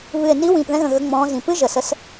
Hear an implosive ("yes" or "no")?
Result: no